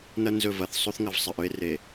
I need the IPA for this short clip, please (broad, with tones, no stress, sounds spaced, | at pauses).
n ɐ˦ n z ɵ˦˨ v ɐ˨ θ sˤ o˦ θ ŋ ɐ˨ v sˤ ɐ˨ ʔ ɵ˦ e̯ r e˨